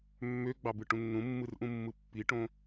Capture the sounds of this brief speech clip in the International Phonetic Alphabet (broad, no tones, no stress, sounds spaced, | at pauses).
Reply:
mː ø ɡ͡b ɑ b ɯ ʈ ũ nː ũ mː ɯ r ʔ ũ mː ɯ pː i ʈ õ